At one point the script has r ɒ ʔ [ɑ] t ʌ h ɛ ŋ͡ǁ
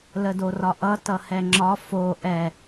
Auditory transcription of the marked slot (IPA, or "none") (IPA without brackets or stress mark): ʌ